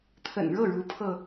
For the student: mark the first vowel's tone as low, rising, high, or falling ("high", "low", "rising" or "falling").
low